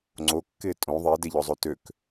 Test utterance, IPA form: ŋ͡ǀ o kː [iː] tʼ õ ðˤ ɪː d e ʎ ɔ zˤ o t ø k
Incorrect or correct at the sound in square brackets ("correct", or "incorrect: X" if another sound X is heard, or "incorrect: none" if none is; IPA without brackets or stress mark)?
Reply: incorrect: ɪː